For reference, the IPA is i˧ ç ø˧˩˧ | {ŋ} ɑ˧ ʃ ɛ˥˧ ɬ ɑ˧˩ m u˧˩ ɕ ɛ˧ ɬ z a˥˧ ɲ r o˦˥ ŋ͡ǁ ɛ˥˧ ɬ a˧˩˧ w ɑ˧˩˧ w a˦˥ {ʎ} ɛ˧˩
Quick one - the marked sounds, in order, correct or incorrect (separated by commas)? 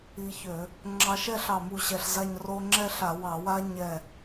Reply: incorrect, incorrect